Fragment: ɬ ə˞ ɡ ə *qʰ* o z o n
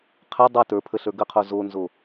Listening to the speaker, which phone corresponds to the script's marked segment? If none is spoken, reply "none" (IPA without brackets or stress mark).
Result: qʰ